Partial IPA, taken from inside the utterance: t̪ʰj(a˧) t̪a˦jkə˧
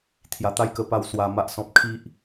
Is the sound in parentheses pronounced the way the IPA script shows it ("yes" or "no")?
yes